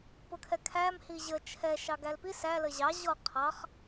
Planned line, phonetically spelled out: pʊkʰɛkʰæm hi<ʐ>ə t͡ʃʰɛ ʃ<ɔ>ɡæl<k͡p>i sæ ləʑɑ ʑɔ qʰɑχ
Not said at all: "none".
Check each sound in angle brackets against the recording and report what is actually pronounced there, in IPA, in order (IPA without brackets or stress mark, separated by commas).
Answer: ʑ, ɑ, p